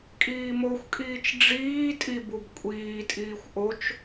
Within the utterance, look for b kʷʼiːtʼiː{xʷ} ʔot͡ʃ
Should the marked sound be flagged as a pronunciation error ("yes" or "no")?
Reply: no